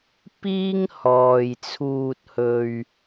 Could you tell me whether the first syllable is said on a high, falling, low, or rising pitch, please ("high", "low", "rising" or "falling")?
high